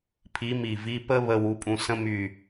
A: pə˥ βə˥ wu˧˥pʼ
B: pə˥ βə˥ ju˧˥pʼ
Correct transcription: A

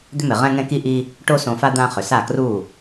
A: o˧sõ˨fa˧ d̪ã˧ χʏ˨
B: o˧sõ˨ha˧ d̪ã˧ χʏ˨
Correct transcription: A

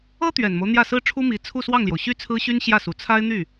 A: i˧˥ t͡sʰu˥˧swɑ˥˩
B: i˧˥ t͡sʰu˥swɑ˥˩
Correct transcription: A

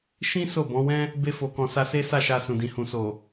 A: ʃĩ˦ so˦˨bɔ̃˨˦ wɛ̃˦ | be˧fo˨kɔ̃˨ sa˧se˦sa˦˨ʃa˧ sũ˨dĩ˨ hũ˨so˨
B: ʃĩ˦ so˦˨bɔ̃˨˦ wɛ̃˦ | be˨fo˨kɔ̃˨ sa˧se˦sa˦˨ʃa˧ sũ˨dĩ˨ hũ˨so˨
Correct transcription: A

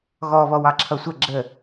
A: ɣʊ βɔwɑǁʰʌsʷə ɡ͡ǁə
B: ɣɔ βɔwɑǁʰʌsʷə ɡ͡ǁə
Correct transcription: B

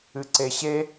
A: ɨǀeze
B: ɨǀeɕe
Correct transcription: B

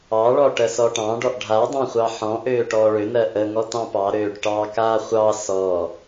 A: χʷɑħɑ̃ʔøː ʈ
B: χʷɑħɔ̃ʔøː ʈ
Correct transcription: B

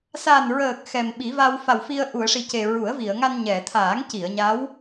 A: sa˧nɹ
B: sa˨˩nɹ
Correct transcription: B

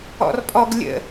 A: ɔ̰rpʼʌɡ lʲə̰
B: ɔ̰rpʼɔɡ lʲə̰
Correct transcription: B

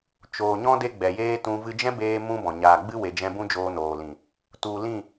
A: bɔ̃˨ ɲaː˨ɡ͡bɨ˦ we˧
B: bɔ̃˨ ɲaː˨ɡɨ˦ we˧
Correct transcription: A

